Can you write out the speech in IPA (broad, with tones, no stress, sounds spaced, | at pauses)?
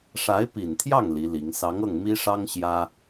ʂ a˧˥ ɪ̯ p i˨˩ n t̪ʰ j ɑ˥˩ ŋ l i˧˥ l i˧˥ ŋ s ɑ˧˥ ŋ ɤ˥˩ ŋ m i˥ ʂ ɑ˥ ŋ ɕ j ä˥